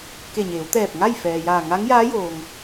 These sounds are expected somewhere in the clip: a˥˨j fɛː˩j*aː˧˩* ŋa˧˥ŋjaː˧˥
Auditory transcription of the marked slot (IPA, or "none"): aː˧˩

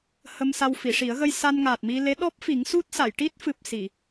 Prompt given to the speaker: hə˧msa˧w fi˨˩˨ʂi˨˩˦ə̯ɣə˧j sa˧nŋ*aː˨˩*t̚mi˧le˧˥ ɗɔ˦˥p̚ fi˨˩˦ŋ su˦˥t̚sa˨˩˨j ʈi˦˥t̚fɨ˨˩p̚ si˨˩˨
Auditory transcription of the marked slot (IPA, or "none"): aː˨˩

